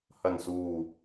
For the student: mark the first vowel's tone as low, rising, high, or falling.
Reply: low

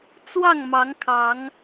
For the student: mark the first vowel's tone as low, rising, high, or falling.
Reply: falling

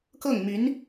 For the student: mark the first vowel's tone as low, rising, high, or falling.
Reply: falling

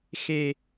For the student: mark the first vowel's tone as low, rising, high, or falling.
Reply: high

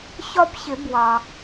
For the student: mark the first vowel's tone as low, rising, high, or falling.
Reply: high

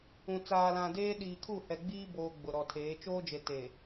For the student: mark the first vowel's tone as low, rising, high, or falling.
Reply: low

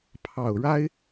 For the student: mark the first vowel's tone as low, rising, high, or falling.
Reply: low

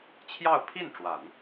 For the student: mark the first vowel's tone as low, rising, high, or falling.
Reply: falling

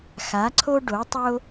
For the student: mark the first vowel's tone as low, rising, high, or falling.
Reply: rising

